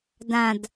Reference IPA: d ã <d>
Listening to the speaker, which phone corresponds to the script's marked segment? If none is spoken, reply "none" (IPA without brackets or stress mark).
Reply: d